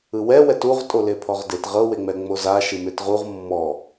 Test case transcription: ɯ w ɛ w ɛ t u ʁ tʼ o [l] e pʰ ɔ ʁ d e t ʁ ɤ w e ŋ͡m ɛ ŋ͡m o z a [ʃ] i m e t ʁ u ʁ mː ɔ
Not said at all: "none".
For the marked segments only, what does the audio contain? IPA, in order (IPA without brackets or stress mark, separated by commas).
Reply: l, ʃ